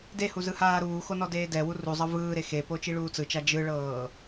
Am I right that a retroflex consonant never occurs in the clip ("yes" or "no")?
no